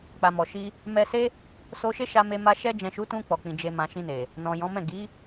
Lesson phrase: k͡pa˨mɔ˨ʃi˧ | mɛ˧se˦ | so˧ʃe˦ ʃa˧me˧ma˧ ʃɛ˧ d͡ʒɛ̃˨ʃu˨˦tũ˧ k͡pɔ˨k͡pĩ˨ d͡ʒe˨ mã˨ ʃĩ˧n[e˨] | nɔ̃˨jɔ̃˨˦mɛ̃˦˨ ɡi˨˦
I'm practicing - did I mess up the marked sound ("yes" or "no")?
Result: no